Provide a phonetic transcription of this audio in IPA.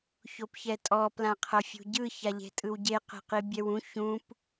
ç o p ç ɛ tʼ ɔ p l ã qʰ ɤ fʲ ṳ ɟ ɯ ç a ʎ e̤ tʼ ɯ w ɟ e q e̤ q i bʲ ɛ w ũ ç ũ p

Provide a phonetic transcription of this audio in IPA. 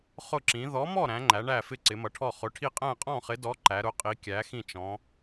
χ ʊ˥˨ ǁ ĩ˨˥ ð ɔ˨˥ m ɔ˥˨ ɾ æ̃˨˥ ŋ͡ǃ æ˨˥ ɳ æ˥˨ f ɪ˥˨ ǀ ɪ˨˥ m ʌ˨˥ ʈʰ ɔ˥˨ χ ʊ˨˥ ʈʰ i˥˨ qʼ æ̃˥˨ qʼ ɔ̃˥˨ χ ɪ˨˥ d ɔ˨˥ ǃ æ˨˥ ɾ ʊ˨˥ qʼ i˨˥ kʲ æ˨˥ x ĩ˥˨ t͡ʃ ɔ̃˨˥

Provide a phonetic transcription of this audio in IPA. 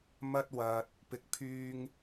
m ɐ˧ t̚ w ɐ˨ t̚ | p ɪ˨ k̚ pʰ yː˧ ŋ

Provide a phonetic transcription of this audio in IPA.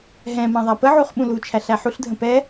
ɦ ɛ̃ m ã ðˤ æ p ə ʕ u χ ɓ ũ l u t͡ʃʰ æ ɬ æ ħ u ɬ dʱ ə̃ p ɛ

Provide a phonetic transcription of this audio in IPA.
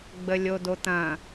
ɡ͡b ə lʲ o d o t̪ ɐ̃

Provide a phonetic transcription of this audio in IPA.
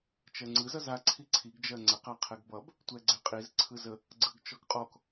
t͡ʃ ɜ ŋ͡ǀ ɯ z ʌ z a ǀʰ i ǀʰ i ɡ d͡ʒ ɜ ŋ͡ǀ ə q a qʰ ɛ ɡ b ʌ b | tʷ ɛ ɡ͡ǀ ɛ qʼ i z ǀʰ ɯ z ə | ɡ͡ǀ ɯ ɡ t͡ʃ ɔ ɡ qʼ ɔ k

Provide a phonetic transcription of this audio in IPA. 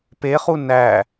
p e χ u n æ

